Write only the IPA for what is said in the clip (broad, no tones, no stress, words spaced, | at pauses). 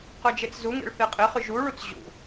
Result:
qœd͡ʒet͡szuŋḛɭ θeqʼeχy ʒuɭut͡s ʑṵ